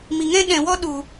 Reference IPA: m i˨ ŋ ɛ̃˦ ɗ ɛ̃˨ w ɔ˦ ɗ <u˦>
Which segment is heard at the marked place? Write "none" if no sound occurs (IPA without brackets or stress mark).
u˨